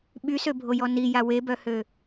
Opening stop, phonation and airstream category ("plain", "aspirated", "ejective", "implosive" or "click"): implosive